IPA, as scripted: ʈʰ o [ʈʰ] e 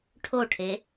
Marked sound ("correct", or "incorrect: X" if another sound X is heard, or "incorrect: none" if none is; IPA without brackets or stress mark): correct